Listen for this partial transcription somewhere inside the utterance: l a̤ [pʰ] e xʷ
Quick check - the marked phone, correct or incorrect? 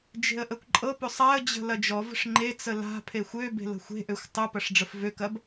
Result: correct